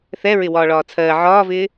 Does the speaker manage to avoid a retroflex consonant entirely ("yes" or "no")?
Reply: no